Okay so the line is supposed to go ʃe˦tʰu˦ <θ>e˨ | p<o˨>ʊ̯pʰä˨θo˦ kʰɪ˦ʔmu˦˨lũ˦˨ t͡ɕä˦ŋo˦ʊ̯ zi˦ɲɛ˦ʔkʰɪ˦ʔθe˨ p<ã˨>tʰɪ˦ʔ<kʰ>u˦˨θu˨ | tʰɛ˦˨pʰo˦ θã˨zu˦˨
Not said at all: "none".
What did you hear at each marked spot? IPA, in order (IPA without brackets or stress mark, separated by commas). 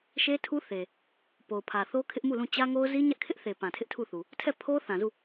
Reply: θ, o˨, ã˨, tʰ